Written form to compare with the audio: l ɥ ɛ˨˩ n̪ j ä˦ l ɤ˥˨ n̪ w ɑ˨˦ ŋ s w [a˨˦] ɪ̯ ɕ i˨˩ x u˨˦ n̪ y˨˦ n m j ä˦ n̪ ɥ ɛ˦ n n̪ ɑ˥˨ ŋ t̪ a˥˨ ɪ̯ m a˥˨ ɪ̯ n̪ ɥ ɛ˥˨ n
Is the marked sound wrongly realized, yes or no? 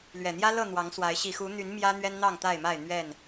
no